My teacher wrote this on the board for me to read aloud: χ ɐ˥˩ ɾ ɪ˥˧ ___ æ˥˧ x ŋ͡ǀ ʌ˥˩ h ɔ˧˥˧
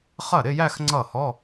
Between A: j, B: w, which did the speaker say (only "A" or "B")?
A